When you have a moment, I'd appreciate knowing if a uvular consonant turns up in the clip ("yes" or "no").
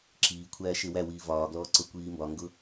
no